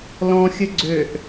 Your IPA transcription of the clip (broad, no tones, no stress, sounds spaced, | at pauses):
l ɔ̃ xʲ ə ɡ͡ǀ ø ʔ